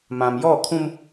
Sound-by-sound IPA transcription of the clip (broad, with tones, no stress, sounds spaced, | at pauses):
m ã˨ m j ɔ˦˨ kʰ ũ˦ m